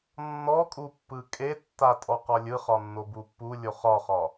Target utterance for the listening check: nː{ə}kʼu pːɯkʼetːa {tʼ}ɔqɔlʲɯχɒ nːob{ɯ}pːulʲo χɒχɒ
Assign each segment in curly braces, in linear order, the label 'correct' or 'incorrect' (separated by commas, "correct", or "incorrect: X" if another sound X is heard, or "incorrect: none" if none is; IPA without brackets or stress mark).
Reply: incorrect: ɔ, correct, incorrect: u